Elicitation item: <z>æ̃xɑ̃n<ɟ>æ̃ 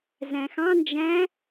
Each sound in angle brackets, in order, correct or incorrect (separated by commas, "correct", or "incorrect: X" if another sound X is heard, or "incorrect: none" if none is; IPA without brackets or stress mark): correct, incorrect: d͡ʒ